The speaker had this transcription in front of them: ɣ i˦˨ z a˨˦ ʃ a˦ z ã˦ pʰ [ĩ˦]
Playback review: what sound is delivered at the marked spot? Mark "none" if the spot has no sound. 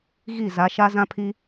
i˦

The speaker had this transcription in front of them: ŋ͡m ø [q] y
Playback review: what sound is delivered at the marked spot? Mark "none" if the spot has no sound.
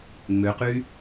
q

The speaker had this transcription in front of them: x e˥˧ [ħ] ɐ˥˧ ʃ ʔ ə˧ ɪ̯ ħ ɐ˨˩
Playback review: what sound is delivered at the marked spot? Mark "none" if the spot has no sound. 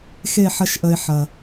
ħ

